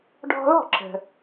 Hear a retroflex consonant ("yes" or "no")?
yes